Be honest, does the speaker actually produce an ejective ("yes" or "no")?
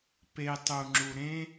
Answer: no